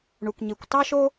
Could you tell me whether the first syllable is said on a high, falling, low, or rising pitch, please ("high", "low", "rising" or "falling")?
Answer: low